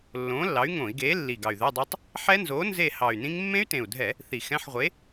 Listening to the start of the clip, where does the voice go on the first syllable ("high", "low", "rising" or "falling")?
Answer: rising